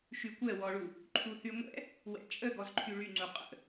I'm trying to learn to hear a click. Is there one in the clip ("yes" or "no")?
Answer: yes